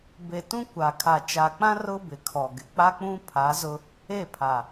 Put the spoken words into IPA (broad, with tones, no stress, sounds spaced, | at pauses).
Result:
b e˨ t ũ˦ kʷ a˨ kʰ a˨ t͡ʃ a˨ k͡p ã˦ r ʊ˦ b ɪ˨ kʰ ɔ˨ ɡ ɪ˨ k͡p a˦ k͡p ũ˦ pʰ a˨˦ z ʊ˦ | e˦˨ pʰ a˨